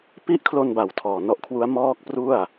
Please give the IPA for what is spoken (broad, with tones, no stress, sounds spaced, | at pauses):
p i˦˥ ʔ kʰ l o˧ n b a˨˩ w tʰ ɔː˨˩ n ɔ˦˥ ʔ kʰ w u˦˥ a̯ m ɔː˦˥ k̚ p r u˥˩ a̯